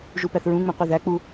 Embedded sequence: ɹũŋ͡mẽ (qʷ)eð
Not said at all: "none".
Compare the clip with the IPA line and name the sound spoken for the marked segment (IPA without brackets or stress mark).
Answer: qʷ